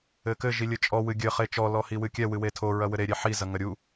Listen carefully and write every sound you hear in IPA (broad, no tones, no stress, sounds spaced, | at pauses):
ɘ k ɘ ʒ i lʲ ɘ t͡ʃʼ ɔ w ɨ ɡʲ ɘ χ e t͡ʃ ɔ l ɔ h i w ɨ kʲ ɛ w ɨ w e tʰ o ɹ ɐ w ɘ ɾ e ɾʲ e ħ i z ɐ ŋ ɐ ɾʲ u